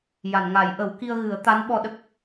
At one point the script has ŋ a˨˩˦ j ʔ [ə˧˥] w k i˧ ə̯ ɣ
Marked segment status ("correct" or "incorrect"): incorrect